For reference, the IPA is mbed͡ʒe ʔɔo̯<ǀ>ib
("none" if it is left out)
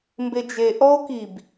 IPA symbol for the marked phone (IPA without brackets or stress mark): k